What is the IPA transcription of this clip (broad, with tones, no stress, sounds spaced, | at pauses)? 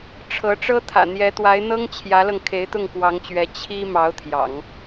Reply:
ʈ͡ʂʰ ɤ˧˥ ʈ͡ʂ ɤ˥ t̪ʰ ä̰˨˩ n̪ j ɛ˧˥ t̪ w a˧˥ ɪ̯ n̪ ɤ˥ ŋ t͡ɕʰ j ä˧˥ l ɤ˧ ŋ kʰ e˧˥ ɪ̯ t̪ ʊ˥˩ ŋ k w ɑ˧˥ ŋ t͡ɕ ɥ ɛ˧˥ t͡ɕʰ i˥ m ɑ˧˥ ʊ̯ t̪ʰ j ɑ̰˨˩˦ ŋ